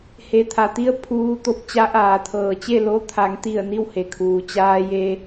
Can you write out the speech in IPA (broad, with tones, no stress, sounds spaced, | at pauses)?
h e˩ t̪ʰ a˩ t̪ i˧ ə̯ pʰ uː˧ t̪ o˧ p̚ t͡ɕ a˧˥ ʔ aː˩ t̪ʰ ɤː˩ t͡ɕ e˥˨ l o˧˥ t̪ʰ a˩˧ ŋ t̪ i˧˩ ə̯ n i˥˨ w h e˩ kʰ uː˩ t͡ɕ aː˧ j e˧